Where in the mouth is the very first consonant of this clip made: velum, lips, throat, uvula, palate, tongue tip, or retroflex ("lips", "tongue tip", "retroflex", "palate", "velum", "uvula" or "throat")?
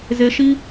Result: tongue tip